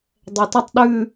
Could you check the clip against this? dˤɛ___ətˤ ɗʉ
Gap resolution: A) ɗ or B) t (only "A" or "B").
B